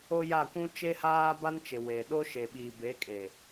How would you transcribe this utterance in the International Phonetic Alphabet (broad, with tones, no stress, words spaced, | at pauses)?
o˦ ja˦˨kʷũ˦ t͡ʃe˦haː˦ba˦nt͡ʃɪ˨ we˨ ɗo˦ʃe˨ɓiː˨ be˨˦kʼe˨